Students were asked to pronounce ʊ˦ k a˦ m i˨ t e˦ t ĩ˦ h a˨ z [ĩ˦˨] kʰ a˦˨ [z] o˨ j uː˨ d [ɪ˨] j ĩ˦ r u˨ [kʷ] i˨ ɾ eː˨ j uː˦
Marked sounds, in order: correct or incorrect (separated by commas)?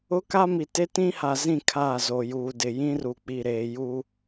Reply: correct, correct, correct, incorrect